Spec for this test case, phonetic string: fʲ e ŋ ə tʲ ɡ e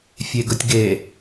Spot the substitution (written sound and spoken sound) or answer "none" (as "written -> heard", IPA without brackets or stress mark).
ŋ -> ɡ